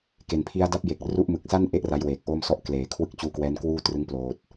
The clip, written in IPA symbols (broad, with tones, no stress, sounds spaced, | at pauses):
k e˨˩ n pʰ i˦˥ a̯ d a˦˥ p̚ j e˨˩ k̚ r u˦˥ ʔ m ɯ˨˩ k̚ s a˥˩ n ʔ e˦˥ ʔ r a˦˥ j w eː˨˩ k̚ ʔ oː˥˩ m s ɔ˥˩ ʔ k l eː˩˦ kʰ w ɯ˦˥ k̚ t͡ɕ uː˧ k w ɛː˦˥ n k w uː˥˩ t r ɯ˦˥ ŋ p l oː˨˩ t̚